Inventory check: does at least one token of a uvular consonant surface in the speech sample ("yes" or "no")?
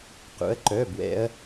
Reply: yes